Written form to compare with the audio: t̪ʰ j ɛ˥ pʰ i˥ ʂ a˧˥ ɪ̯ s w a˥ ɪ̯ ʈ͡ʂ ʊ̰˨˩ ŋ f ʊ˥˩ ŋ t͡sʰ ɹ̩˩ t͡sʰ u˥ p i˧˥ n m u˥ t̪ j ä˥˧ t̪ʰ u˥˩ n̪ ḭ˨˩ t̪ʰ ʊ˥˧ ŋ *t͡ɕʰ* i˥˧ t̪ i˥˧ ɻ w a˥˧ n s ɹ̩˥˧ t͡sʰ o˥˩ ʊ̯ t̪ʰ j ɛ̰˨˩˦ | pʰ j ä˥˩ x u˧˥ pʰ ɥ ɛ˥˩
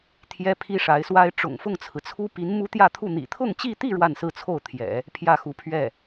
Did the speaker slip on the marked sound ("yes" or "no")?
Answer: yes